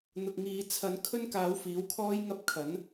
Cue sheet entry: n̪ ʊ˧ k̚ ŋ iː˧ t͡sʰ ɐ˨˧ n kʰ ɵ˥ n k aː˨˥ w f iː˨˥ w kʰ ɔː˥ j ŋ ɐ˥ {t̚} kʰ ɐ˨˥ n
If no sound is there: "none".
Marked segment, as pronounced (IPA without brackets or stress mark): p̚